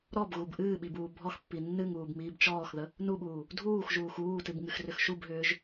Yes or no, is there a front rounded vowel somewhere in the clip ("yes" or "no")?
yes